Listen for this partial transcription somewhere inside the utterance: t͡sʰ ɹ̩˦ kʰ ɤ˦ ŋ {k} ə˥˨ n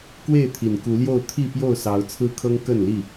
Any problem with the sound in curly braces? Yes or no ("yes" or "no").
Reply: no